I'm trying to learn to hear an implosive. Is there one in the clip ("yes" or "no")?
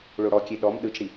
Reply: yes